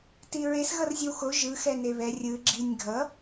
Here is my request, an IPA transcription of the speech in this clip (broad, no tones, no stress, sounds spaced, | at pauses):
t i ɹ e s ɣ ʌ r zʲ ɯ w x o ʒ ɯ x ɛ n e β ɛ rʲ ɯ ɡ͡ǁ i nʲ ɡʱ ʌ